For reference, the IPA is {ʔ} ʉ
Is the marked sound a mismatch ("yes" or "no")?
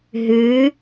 yes